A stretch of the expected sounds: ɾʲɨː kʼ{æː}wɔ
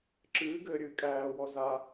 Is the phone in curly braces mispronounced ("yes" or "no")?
no